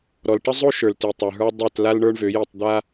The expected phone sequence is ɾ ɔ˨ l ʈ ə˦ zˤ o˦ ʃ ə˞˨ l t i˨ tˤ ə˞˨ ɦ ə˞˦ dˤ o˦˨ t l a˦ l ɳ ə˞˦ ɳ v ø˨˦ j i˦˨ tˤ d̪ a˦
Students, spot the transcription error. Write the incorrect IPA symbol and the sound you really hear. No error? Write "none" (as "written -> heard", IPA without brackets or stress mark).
none